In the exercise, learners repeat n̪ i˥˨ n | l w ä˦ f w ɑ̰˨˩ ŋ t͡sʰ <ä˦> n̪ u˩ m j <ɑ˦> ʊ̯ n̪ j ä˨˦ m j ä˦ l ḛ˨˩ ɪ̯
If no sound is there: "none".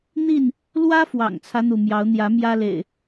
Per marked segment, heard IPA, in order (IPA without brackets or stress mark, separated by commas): ä˦, ɑ˨˦